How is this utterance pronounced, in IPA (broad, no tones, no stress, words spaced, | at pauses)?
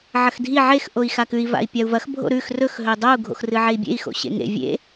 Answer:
ʕɐxdʱi ʕex ʔoi̯xakʉi̯ va̰i̯pʲau̯vɐx bʱo̰ɾʉx rɵx ɦɵi̯dˤou̯ ɡʱo̰xrɨʕei̯bʲḛi̯ xo̰ɕḛŋḛ vʲḛ